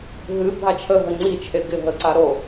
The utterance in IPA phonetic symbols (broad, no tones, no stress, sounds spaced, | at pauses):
ɦ ɨ bʱ a t͡ʃʰ ə ɦ ə ŋ͡ǀ i t͡ʃʰ e ɡ ɪ ɦ ə ǀ a ɾ o